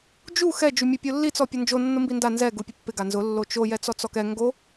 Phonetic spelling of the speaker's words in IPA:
d͡ʒ u x ɛ d͡ʒ u mʲ o pʲ o lː i t͡s ɔ pʲ ɔ n d͡ʒ o nː ʊ m b i n d a n z ɛ ɡ u pʲ ʊ pː ɪ ɡ a n z ʊ lː o t͡ʃ o j ɛ t͡s ɔ t͡s ɔ k ɛ ŋ ɡ o

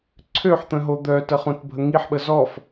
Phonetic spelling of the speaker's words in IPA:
ǀʰ ø ħ t̪ ə̃ ɦ o d̪ œ t ə χ ũ t bʱ ə ŋ i ħ ɓ ə z ɔ f

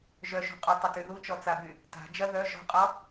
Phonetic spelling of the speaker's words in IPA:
ʒ œ ʃ ṳ qʼ u tˤ ɐ t y ð u t͡ʃ ɔ t͡s a b y | t a̤ d͡ʒ ɐ ð œ ʒ ɔ̤ qʼ ɔ

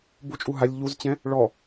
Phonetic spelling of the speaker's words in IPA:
b u t͡ʃʼ u ɦ a lʲ ʎ u z t͡ɕ ɛ̃ | ɭ ɔ

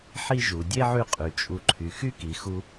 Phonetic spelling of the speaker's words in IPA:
ħ i˥ ʒ u˩ dʲ e˥ ʕ y˦ qʼ y˩ t͡ʃʼ u˨ ǃʰ y˩ x y˥ k i˩ x u˦

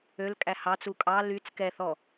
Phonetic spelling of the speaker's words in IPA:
ø l kʼ æ h ɑ t͡s u kʼ ɑ l y t͡s k ɛ θ ɔ

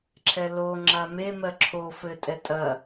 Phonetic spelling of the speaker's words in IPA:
ǁʰ ɛ l o ŋ͡ǁ a m e m ɜ ǁʰ o f ɘ tʼ ɛ tʼ ɐ

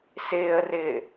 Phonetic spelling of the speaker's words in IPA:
s ɪː ə̯ r ɪː

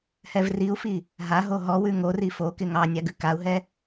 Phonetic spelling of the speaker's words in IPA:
h ɛ v r i u̯ f i | ɦ a ɦ o ɦ ɔ w ʉ ŋ o r i f o k ɪ ŋ ɑ nʲ a ɡ ʉ k a u̯ ɦ ɛ

